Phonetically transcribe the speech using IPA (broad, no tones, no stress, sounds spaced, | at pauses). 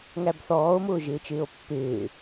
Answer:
ŋ æ b θ ɔː o̯ m ʊː ʒ ɪː t͡ʃ ɪː o̯ pː ɪː